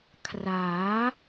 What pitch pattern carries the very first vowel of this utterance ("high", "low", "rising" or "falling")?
rising